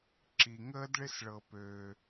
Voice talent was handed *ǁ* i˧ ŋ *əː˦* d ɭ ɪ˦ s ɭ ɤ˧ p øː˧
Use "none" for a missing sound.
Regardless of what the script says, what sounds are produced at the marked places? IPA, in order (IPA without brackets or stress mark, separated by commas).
ǁ, əː˦